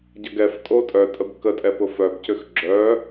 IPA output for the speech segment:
ɟ ə ɡ ɛ f tʼ o tʼ œ tʼ ə b k ə tʼ ɛ p ʊ f œ b c ʏ x ɡ͡ǁ œ

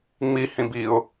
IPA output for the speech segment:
ŋ͡m i h ĩ b i ʊ̯

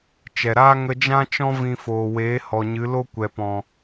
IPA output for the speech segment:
t͡ʃ ɛ˨ ɾ aː˦ ŋ ə˧ d͡ʒ ã˦ t͡ʃ ɔ̃˦ v ĩ˧ f oː˨ w eː˨˦ h ɔ˨ ɲ ɨ˨˦ l o˦ kʷ ɛ˨ p ɔ̃˨

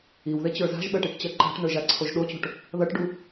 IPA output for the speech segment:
i w ð e t͡ɕ ə˞ z a̤ ʒ ɓ ɜ ʈ i ʈ t͡ɕ ɜ ǃ a̤ ʈ n ə˞ ʒ a ǀʰ o ʒ ɗ o t͡ɕ o̤ ʈ | ð ʌ ʈ ɖ u

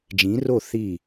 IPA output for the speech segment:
d͡ʒ ĩ˨˥ r o˥˩ θ i˥˩

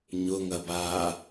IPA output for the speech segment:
ɲ ʊ ŋ ɐ b aː

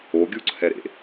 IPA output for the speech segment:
o ɡʲ u ǀʰ ɛ ɾ ḛ

